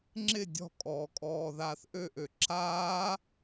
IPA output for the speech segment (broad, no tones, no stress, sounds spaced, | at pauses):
ŋ͡ǁ ɪ dʲ ɔ̤ kʼ ɔː kʼ ɔː ð aː θ ʔ ø ʔ ø ǁ aː